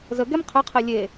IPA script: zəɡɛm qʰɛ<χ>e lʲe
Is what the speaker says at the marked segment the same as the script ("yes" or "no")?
no